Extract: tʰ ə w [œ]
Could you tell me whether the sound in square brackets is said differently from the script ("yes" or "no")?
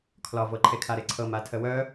no